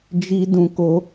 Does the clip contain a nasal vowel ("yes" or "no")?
yes